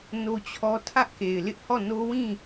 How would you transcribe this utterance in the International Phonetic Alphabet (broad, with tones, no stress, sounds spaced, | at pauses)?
n o˦ t͡ɕʰ ɔ˦ tʰ ä˦ ʔ k e˨ ɪ̯ l ɪ˦ ʔ h ɔ˦˨ n o˦ w ĩ˦˨